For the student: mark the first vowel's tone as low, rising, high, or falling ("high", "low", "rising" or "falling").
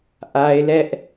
high